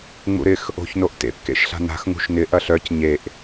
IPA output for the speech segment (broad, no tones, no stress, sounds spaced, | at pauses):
ŋ͡m ṵ ɾ ɪ x | o̤ ç n o ʔ t ḛ p k ḛ ʃ ɬ a̤ n a̤ x ŋ ṳ ʃ n ɪ ʔ ɐ ɬ œ c ɲ e ʔ